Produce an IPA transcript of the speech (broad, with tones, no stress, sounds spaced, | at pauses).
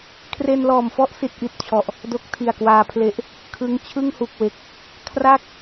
kʰ r e˧ n l ɔː˨˩ m f ɔ˦˥ ʔ s i˦˥ t̚ ʔ i˨˩ t̚ t͡ɕʰ ɔ˨˩ ʔ | d o˦˥ k̚ tʰ i˨˩ a̯ k w aː˧ pʰ l e˦˥ ʔ | kʰ ɯ˦˥ ŋ t͡ɕʰ ɯ˥˩ ŋ h u˨˩ k̚ w e˨˩ k̚ | kʰ r a˥˩ k̚